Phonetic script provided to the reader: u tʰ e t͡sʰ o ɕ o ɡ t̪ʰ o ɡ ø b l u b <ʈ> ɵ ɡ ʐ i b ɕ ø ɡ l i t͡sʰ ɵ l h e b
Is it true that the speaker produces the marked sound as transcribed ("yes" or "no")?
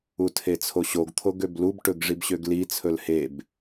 yes